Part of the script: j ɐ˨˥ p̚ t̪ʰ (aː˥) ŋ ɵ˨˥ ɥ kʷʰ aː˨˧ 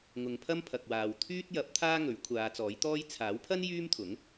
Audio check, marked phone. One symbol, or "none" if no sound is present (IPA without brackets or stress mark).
aː˥